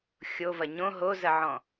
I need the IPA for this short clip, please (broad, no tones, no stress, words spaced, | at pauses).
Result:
xʲovɐ ɲõ ɦozɐʕɔ̃